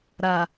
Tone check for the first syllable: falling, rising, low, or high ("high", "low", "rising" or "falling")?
low